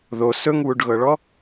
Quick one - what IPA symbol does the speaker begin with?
ð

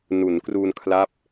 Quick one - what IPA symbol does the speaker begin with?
n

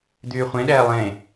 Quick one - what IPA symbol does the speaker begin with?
d̪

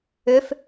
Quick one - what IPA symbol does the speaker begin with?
ʏ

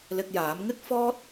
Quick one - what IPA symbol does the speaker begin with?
l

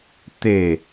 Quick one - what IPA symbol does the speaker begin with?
t̪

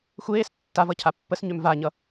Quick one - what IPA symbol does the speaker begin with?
xʷ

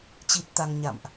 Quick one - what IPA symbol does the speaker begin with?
t͡ɕ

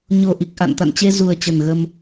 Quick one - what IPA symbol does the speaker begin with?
ɲ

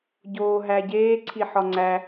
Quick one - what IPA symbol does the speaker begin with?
ɟ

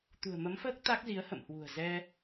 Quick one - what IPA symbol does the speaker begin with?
t̪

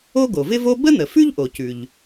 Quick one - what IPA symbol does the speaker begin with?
o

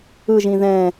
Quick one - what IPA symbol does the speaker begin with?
ɯ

